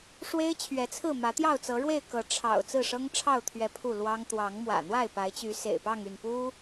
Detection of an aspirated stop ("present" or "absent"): present